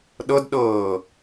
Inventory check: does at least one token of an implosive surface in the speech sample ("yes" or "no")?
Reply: yes